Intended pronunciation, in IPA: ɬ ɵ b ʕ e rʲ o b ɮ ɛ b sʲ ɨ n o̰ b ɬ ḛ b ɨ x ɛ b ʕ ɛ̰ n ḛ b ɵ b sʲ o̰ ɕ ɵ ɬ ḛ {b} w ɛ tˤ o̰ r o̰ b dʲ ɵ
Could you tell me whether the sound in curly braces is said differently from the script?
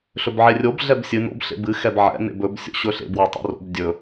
no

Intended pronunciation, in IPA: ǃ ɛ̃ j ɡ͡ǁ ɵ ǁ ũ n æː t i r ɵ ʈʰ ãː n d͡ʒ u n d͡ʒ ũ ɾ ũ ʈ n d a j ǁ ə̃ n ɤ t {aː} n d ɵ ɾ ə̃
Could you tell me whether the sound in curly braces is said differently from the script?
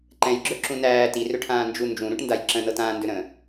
yes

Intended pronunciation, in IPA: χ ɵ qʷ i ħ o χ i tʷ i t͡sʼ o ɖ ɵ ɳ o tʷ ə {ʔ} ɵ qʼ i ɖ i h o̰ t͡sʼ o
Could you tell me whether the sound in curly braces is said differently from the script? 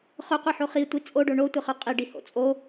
yes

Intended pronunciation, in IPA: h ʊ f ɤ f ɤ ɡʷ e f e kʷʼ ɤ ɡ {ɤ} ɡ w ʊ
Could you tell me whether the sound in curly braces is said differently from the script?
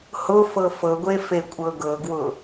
no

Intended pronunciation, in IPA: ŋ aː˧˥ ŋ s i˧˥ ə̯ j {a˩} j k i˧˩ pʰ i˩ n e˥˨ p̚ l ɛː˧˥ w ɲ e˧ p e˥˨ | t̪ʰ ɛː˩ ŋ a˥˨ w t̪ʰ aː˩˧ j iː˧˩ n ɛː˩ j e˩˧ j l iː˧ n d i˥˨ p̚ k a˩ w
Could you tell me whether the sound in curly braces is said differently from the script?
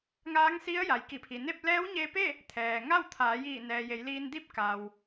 no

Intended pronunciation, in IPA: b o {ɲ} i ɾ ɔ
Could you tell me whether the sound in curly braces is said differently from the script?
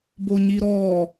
no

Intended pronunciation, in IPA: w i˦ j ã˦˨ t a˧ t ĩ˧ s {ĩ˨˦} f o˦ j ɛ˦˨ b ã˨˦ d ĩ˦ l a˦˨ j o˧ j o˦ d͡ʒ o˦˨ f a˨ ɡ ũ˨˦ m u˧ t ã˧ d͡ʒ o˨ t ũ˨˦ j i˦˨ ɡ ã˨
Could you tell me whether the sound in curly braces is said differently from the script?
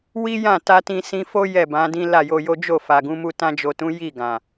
yes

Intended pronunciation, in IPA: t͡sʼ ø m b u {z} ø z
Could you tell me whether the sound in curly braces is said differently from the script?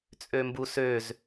yes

